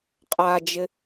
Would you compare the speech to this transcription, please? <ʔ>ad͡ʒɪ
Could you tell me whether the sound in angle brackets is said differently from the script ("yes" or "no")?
yes